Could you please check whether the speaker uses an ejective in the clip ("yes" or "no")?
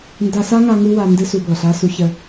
no